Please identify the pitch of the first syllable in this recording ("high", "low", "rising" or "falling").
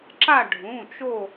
falling